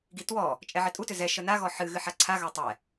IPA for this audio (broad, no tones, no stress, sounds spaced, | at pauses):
ɡ i t w ɔ | t͡ʃʼ ɛ ʕ ɪ tʼ u t ʏ z ɛ ʃ ə n a ɣ ɔ ħ ɨ ɣ ɨ ħ a ǀʰ a ɣ a tˤ ɛ